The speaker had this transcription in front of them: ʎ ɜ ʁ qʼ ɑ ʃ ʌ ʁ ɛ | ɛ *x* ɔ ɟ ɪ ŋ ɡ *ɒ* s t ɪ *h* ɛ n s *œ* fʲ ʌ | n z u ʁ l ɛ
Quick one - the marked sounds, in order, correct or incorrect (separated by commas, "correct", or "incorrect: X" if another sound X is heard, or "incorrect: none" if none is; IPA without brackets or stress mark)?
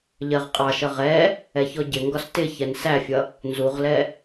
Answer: incorrect: ç, correct, incorrect: ç, incorrect: æ